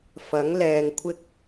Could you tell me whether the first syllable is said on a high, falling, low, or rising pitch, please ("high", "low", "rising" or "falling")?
rising